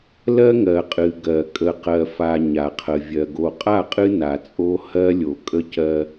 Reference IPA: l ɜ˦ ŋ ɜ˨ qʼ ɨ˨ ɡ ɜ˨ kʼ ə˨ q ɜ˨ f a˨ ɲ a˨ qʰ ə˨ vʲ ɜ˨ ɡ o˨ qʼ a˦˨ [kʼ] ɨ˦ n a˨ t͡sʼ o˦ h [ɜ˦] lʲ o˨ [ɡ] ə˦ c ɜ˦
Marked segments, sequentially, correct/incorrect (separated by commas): incorrect, correct, incorrect